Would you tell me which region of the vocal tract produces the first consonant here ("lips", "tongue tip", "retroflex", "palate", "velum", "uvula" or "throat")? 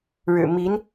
retroflex